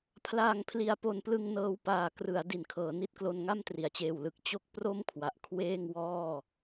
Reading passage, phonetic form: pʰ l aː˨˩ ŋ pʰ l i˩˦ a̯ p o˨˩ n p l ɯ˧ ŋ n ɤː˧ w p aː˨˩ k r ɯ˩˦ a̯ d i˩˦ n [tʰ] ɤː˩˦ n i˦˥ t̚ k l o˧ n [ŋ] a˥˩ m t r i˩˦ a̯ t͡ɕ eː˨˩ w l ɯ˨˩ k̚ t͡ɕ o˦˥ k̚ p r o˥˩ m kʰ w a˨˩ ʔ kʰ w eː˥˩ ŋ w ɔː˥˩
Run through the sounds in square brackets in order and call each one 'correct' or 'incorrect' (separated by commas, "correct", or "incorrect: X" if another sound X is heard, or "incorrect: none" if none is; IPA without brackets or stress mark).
incorrect: kʰ, correct